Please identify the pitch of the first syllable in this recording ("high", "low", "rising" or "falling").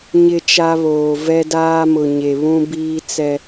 high